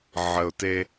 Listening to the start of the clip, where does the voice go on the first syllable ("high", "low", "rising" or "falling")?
low